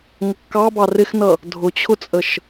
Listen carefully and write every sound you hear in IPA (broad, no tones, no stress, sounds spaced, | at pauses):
ŋ ə kː ɑ b ɑ r ɪ x n ʌ | dʱ ʊ t͡ɕʰ ʊ t͡sʼ ə ʃ